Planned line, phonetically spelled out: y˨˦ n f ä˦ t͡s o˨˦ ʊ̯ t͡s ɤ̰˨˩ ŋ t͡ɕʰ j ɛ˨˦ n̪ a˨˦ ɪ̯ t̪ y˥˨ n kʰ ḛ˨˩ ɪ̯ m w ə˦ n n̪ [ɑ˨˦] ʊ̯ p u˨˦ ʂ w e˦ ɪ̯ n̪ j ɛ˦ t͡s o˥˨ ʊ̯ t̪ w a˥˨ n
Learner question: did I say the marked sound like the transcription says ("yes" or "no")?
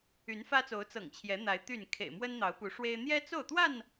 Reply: yes